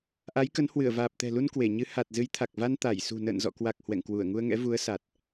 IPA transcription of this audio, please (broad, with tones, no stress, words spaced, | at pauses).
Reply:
ʔa˨˦jkə˨˦n hwɨ˧˩ə̯vaː˨˩p̚t̪ɛ̤˨˩lu˧n kwe˧˩ɲɨ˨˦ ha˨˩t̚ zɨ˨˦jt̪ʰa˨˩k̚va˧n t̪a˧˩jsṳ˨˩ nə̰ː˧˨nzɔ̰˧˨kwa˨˩k̚ hwɛ̰˧˨ŋkwu˧˩ə̯ŋu˧ə̯ŋɛ̰˧˥ vu˨˦ə̯sa˨˩t̚